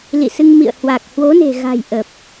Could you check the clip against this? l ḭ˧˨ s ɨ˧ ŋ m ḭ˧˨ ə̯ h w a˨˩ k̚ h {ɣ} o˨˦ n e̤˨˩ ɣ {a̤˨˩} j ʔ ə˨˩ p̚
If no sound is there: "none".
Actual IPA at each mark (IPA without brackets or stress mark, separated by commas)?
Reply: w, a̤˨˩